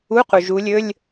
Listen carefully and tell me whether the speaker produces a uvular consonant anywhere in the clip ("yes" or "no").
yes